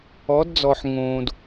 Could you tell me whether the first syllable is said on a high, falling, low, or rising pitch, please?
rising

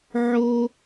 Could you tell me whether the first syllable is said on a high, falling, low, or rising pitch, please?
high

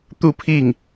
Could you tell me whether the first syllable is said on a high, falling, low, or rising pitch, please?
falling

